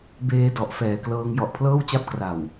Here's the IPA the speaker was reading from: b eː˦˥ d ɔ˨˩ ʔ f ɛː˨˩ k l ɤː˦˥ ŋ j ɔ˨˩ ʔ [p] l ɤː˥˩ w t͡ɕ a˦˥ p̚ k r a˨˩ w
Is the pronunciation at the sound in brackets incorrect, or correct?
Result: incorrect: pʰ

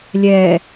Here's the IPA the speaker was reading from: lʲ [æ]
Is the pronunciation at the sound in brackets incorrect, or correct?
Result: incorrect: ɛ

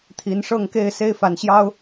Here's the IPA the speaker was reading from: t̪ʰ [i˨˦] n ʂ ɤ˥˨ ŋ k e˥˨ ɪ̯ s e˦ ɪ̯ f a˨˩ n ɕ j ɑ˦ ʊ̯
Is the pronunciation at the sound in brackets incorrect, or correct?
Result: correct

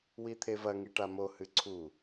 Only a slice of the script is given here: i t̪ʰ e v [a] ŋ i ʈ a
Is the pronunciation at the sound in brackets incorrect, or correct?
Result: incorrect: ɐ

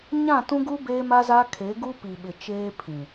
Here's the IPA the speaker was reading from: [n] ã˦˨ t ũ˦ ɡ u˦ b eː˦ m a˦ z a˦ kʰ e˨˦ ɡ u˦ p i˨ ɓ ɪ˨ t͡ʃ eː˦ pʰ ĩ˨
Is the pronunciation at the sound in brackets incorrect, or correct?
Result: incorrect: ɲ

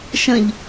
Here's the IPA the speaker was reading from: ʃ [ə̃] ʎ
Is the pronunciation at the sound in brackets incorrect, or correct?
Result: correct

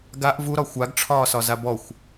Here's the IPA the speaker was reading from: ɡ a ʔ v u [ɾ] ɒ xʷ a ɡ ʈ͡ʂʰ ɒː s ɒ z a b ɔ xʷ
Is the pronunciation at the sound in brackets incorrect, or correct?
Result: correct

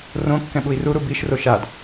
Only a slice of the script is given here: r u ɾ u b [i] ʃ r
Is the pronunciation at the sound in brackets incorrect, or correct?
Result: correct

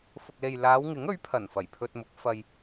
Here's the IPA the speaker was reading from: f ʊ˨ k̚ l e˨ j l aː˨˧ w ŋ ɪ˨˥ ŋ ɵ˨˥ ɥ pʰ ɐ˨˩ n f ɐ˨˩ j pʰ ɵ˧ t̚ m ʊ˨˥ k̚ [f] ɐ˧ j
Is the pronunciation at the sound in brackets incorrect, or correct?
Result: correct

